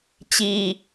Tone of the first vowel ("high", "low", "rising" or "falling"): high